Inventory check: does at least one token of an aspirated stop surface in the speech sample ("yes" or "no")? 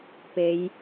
no